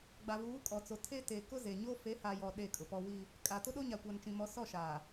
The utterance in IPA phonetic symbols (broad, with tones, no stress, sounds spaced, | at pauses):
ɡ͡b a˨ v uː˨˦ kʼ ɔ˨ t͡s o˨ tʰ e˦ t e˨ k ʊ˦ z e˨ ɲ o˦ f e˨˦ h a˨ j ɔ˨ ɗ e˦˨ kʼ ʊ˨ p ɔ˦ w i˦ | kʼ a˨ t ʊ˦ ɗ o˦ ɲ a˨ kʷ a˨ n t͡ʃ ĩ˨ m ɔ˨˦ s ɔ˦˨ ʃ aː˨